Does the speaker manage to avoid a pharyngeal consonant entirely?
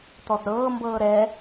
yes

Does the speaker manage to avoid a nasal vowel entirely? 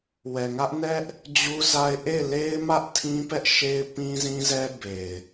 no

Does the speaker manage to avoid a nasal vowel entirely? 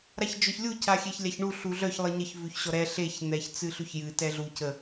yes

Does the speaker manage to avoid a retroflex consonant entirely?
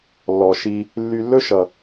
yes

